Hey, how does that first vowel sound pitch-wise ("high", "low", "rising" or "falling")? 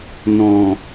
low